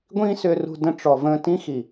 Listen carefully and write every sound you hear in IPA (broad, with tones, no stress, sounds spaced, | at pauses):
ɡʷ ĩː˦ s ʏː˧ r ṳ˧ d ə̃˧ ʈ͡ʂ ɔ˨ v ə̃ː˧ t ĩ˦ x i˨